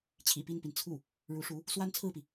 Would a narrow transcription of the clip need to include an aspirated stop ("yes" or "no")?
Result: yes